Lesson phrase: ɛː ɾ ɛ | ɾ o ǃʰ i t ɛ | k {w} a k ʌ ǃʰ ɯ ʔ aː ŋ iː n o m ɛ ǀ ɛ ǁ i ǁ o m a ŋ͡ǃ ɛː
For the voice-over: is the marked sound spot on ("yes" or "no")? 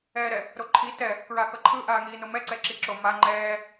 no